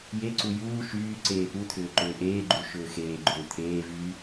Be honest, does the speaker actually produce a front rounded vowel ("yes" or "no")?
yes